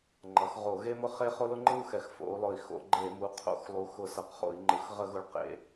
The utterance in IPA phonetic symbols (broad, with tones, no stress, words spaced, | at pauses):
ŋ͡ǃʌ˩˧xʁo˧˩˧ɣe˥mʊ˥ χe˥ χo˥lʊ˥ŋ͡ǃɯ˥u̯ xɛ˨˩xfo̰˩˧u̯lˠʊ˨˩i̯ xo̰˧˩˧ɡ͡ǃe˧˩˧ mu˩˧qʰo̰˧˩˧xlˠu˩˧ xʊ˧˩˧sʌ˨˩qχo̰˧˩˧i̯ŋ͡ǃɯ˩˧x ʁə˧˩˧ɣʊ˨˩ɭ qḛ˧˩˧